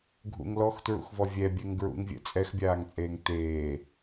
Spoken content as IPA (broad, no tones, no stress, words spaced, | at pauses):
ɡʱṵŋ lɔxtɹṵxvɔ vʲɛbʲɛŋ ɡɹṵŋvʲɛ̰ t͡sʼɛxbʲaːŋt͡sʼeːŋ teː